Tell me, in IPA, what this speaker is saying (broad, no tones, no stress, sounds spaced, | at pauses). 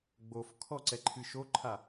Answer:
ɡ͡b o f kʰ ɔ ǀ ɛ ǃʰ ɨ ʃ o ǃʰ a